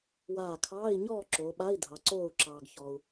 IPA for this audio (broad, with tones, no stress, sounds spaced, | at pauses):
w aː˧˩ kʰ ɑː˧˥˧ i̯ ɲ ɔː˥˨ ǁ o˩˧ ɓ a˧˥˧ i̯ dʱ ɑ˩˧ ǀ oː˧˩ u̯ ǁ ɑː˩ ɡ ç ɔ˩ u̯